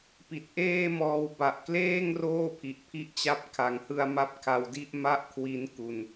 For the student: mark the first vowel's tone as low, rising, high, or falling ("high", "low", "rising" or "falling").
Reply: low